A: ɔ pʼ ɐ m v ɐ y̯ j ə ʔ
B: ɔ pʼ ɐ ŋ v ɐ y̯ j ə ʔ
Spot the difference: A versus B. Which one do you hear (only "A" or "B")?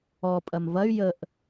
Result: A